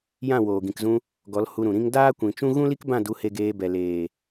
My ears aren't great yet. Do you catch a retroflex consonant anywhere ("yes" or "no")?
no